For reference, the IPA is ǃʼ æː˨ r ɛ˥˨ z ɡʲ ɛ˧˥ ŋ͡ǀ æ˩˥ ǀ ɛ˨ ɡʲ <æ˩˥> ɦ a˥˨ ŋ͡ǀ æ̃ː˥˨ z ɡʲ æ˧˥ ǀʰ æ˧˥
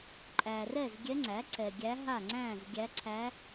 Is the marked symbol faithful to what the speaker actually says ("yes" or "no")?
no